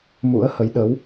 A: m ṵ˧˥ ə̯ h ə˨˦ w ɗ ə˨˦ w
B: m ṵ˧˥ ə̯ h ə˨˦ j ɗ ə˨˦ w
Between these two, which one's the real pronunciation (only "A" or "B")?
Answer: B